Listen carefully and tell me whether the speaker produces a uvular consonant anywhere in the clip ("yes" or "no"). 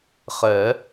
yes